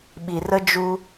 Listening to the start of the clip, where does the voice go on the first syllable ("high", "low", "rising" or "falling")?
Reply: low